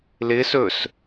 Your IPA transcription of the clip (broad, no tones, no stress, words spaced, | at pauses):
lɪ sɵs